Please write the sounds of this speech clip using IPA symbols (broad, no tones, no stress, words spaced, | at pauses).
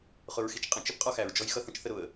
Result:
χʊɹxit͡ʃqʼə̃t͡ʃɪp qʼɔxæɹd͡ʒɔj xʌθə̃t͡ʃθə ɾʊə̯